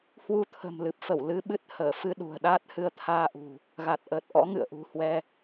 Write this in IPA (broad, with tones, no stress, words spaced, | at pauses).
hwu˧t̪ʰə̤˨˩mlɨ˨˩p̚fə˧˩w lɨ˧ɓɨ˦˥t̚ həː˧˩fɨ˧ ɗṳ˨˩ə̯ɗaː˦˥t̚hɨ˧ə̯ t̪ʰaː˧ʔṳ˨˩ | ɣa˨˩t̚ʔəː˨˩t̚ʔɔ̰˧˥ ŋɨ̰˧˨ə̯ʔṳ˨˩hwɛ˧